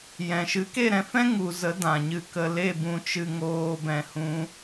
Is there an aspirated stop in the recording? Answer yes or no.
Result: no